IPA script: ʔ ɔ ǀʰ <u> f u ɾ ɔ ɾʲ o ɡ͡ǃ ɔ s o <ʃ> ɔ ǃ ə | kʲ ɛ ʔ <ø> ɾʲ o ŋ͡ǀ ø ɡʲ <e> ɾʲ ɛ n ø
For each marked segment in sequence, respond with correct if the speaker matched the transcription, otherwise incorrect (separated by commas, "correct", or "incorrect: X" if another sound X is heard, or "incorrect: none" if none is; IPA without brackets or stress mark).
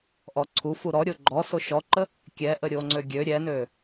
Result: correct, correct, incorrect: ə, incorrect: ø